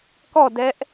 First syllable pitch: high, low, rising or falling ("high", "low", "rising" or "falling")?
falling